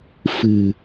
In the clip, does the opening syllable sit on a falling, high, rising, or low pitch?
low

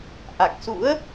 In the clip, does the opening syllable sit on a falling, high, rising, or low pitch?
low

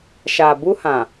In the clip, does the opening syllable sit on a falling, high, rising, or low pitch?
low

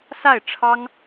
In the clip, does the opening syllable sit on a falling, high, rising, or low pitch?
falling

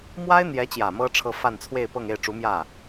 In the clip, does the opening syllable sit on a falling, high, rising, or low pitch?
high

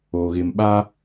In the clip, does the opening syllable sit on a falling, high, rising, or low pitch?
low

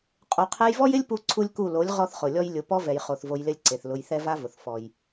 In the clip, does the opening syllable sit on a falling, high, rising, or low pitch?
low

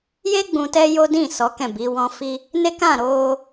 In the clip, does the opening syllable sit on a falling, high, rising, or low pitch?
high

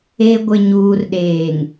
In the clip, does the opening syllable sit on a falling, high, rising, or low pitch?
high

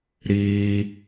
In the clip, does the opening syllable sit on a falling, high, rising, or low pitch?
high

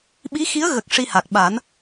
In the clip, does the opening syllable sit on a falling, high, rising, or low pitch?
rising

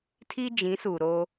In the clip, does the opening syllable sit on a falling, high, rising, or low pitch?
high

